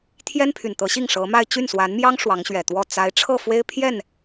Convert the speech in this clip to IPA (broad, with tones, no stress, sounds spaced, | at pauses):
t̪ʰ j ɛ˥ n pʰ y˨˩ n t̪ ɤ˧˥ ɕ i˥˩ ŋ ʂ ɤ˧˥ m a˥˧ ɪ̯ t͡ɕ y˥˩ n s w a˧˥ n m j ɑ˥ ŋ ʂ w ɑ˧˥ ŋ ɕ ɥ ɛ˨˩ t̪ w ɔ˥˩ t͡s a˧˥ ɪ̯ ʈ͡ʂʰ ɤ˥˩ f w e˥ ɪ̯ pʰ j ɛ˥˩ n